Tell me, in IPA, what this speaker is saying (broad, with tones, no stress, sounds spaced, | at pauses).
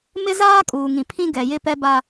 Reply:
m ɪ˦ z aː˦ kʼ uː˨ ŋ ĩ˨ pʰ ĩ˦ ɡ ɛ˨ j ɪ˦ p ɛ˦ b a˦